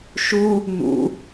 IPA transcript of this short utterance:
ʃ u | n ṵ

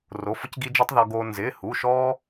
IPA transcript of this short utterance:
r o˩˧˩ f ʊ˧ c ɡ i˧ d͡ʒ i˧ tˤ ð ɔ˧ ɡ oː˧ n z ɪː˩˧˩ h u˩˧˩ ʃ ɔː˧

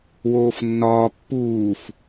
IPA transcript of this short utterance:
w oː f nː ɒː pː uː f

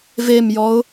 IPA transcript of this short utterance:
v e m j ɔ ʊ̯

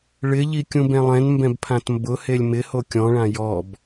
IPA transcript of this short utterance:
ɭ ɪ ʎ i kʲ ũ b ɛ̃ lˠ ɛ̃ n m b ɛ̃ b pʰ ã t m b ʊ h e lʲ m ɪ h o kʲ ɔ̃ ɭ ã j ɔ b

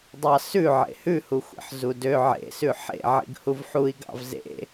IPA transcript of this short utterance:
dˤ ɑ s ʉ ʕ ḛ h ʉ h u xʷ ḛ ħ z u d ø ʕ ḛ s ʉ ħ ḛ ʕ ḭ ɡ h u v ħ u i̯ ɡ ɑ̰ v z ḛ

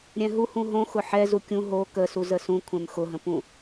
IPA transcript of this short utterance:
ɾʲ ɛ̃ ɦ u h ũ ɦ õ x ʊ ħ ɛ z u kʲ ũ ɦ o k ə s u z ə s ũ kʷʰ ɛ̃ m x ʊ ɦ ə̃ p ũ

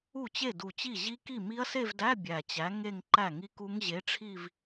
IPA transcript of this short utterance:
u˥˩ t͡ɕ e˥˩ d u˧˩ t͡ɕ i˥˩ ʑ i˦˥ k i˥˩ m i˦˥ ɐ̯ s e˥˧ v d æ˧˥˧ bʲ æ˧˩ t͡ɕ æ˨˥ ŋ e˥˧ ŋ ǃ æ˥˩ ŋ i˦˥ k u˦˥ ŋ ʑ e˨˥ ʈ͡ʂʰ i˥˧ v

